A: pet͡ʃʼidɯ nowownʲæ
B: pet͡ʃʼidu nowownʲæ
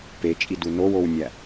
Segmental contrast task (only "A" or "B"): B